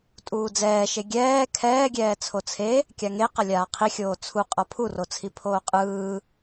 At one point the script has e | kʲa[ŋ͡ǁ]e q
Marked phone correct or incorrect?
incorrect